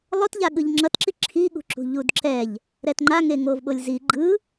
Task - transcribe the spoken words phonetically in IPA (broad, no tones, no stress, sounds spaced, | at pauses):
lˠ o t ʎ a ɠ ɯ ʎ ŋ͡ǁ ʌ t ǁ i ǁʰ i ɠ ṳ ǁ ṳ ʎ u d ǁ ɛ ʎ | ɾ ɛ t ŋ͡ǃ a ŋ e ŋ o v ɓ o lʲ z i ɡ͡ǃ ɯ